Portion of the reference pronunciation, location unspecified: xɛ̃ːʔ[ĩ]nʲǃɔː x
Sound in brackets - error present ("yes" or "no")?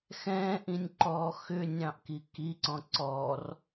no